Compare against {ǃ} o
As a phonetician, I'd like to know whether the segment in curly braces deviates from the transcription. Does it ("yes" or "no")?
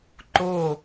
no